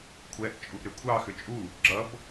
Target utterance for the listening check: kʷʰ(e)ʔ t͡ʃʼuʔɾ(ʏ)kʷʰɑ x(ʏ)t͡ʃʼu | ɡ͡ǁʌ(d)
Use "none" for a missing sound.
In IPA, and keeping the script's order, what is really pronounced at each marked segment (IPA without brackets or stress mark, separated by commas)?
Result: ɛ, ʏ, ʏ, b